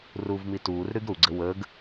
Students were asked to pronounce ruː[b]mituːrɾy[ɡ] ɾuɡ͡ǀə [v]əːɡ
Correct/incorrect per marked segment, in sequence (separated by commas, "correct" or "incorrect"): incorrect, correct, incorrect